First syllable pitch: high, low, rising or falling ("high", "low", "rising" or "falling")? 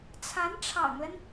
rising